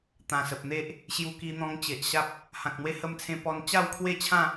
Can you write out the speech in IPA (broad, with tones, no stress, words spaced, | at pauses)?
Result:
t̪ã˨˩sə˨p̚n̪e˦ʔ | ɕju˧ki˧ n̪ɔ̃˧ŋ t͡ɕe˨ʔɕa˦p̚ | hã˨k̚n̪we˧hə˧mt͡sʰẽ˧ pɔ˧nt͡ɕa˥˧wkʰwe˥˧t͡ɕʰã˥˧